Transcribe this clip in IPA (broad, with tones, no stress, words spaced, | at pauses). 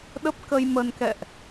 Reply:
ɗə˦˥p̚kə˧jmə˧n kɛ̰˧˨ʔ